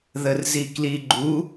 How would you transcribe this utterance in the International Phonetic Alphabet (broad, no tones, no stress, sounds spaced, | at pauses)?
ð ə r z i k l i ɡ͡ǃ u